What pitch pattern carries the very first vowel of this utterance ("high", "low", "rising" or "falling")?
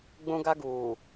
high